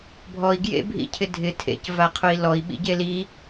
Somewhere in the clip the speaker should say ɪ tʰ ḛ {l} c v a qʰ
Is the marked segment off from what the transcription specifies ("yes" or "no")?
yes